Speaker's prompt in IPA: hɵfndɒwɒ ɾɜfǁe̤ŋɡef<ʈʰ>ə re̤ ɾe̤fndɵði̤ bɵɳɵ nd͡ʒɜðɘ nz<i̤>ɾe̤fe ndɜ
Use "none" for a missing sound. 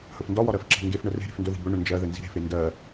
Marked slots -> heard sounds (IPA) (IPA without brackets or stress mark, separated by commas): ɳ, i̤